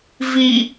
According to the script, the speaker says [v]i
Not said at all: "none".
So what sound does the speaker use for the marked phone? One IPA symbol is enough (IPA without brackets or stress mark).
v